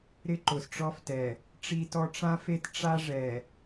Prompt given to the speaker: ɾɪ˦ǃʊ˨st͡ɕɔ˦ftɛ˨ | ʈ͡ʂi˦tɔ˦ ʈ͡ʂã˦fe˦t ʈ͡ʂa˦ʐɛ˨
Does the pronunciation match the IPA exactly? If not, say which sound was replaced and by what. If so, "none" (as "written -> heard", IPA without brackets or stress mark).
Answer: t͡ɕ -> ʈ͡ʂ